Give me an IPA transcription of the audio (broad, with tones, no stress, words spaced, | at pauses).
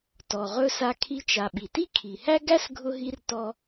tɔ˩ʁɵ˧ sa˧kʰi˧t͡ʃa˩ ɓi˩ti˥kʰi˩hæ˥ ɡæ˥sɡʱʊ˧ɦi˧r tɔ˧